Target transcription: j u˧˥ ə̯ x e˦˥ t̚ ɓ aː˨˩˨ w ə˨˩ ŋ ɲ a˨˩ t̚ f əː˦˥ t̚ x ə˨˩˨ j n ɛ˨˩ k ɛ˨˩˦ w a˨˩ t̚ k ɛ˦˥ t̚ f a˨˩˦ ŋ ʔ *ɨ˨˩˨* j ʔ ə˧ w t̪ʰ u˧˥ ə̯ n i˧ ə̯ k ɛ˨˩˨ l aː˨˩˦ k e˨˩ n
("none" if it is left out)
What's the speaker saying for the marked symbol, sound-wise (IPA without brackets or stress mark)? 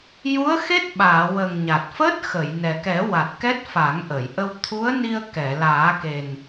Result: ə˨˩˨